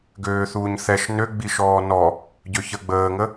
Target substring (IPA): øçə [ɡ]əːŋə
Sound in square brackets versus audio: incorrect: ɡ͡b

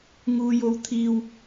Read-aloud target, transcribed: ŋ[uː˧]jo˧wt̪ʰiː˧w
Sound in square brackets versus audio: correct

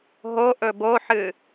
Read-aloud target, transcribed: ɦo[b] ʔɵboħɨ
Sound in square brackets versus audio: incorrect: none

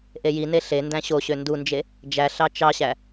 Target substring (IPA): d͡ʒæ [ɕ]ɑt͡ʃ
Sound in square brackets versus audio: incorrect: ɬ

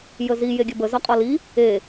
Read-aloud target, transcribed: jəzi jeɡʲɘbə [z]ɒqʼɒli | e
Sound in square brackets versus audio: correct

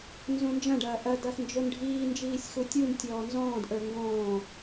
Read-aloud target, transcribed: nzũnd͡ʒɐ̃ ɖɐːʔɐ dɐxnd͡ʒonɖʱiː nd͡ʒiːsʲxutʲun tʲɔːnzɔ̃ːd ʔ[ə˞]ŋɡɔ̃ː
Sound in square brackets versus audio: correct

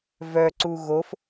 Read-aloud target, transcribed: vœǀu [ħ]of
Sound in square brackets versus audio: incorrect: ɣ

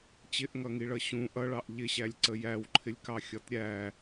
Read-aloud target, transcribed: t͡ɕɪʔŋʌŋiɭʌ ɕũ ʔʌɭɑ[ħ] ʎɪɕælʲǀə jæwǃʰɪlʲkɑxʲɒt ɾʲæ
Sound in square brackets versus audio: incorrect: ʔ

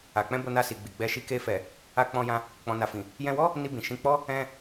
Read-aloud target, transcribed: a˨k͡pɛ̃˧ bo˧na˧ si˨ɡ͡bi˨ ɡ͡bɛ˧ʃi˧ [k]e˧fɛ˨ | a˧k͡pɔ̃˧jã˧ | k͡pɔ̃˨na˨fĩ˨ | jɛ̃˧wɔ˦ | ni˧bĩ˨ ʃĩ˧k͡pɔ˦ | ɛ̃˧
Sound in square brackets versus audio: correct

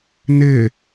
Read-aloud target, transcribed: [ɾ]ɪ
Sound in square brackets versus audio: incorrect: n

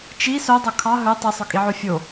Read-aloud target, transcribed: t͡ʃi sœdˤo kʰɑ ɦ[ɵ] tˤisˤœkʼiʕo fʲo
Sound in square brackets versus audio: correct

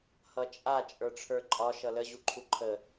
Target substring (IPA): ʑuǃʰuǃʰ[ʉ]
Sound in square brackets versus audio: incorrect: ə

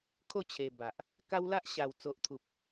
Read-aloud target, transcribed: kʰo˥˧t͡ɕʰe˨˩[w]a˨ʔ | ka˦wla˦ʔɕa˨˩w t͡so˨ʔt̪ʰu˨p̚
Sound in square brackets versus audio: incorrect: b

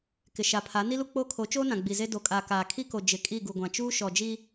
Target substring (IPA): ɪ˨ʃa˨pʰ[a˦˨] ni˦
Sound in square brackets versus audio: incorrect: a˨˦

